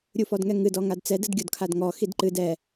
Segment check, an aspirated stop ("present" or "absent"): present